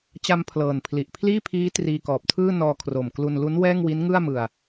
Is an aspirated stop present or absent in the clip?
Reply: present